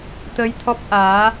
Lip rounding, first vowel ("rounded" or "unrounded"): unrounded